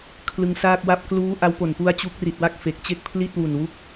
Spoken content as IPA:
kʰlɯ˧ŋsaː˥˩k̚wa˥˩p̚ kluː˦˥ ʔa˦˥wpo˨˩npu˦˥a̯ t͡ɕu˦˥k̚ri˨˩t̚wa˥˩k̚ fe˨˩k̚t͡ɕe˥˩k̚pʰli˥˩t̚ wu˨˩nwu˦˥k̚

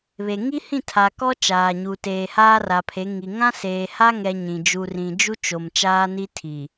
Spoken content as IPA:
βe˨ ŋi˦hĩ˦˨ tʰa˨kɔ˦ t͡ʃaː˨ɲu˨teː˨ haː˦ra˨pʰe˨˦ ŋi˨ ŋã˦seː˨ha˦ ŋɛ˦ɲĩ˨ d͡ʒu˨rĩ˨d͡ʒu˦t͡ʃo˨m t͡ʃaː˦ni˦ tʰi˨

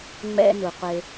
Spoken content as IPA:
ŋ͡mɛ̰˧nu˨ qʷe˧

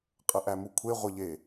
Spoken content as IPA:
qʼəʔæmukʷʰe ʁʷəʎe

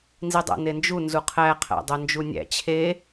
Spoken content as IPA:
nzidˤæ̰nend͡ʒu nzuqʰæ qʰæ̰dˤond͡ʒunʲæ̰ t͡ɕʰe

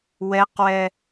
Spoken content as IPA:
wɛqwɛ

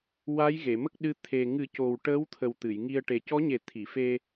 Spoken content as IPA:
wa˧˥jɣe˨˩˨mə˦˥k̚ ɗɨ˧˥ t̪ʰe˨˩ ŋɨ˨˩˦co˨˩w ʈəː˧˥wt̪ʰə˨˩w t̪ɨ˨˩˨jŋi˧ə̯ ʈe˨˩cɔ˧˥ɲe˨˩˦ t̪ʰi˨˩˨fe˧

